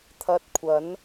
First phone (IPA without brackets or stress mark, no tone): t̪ʰ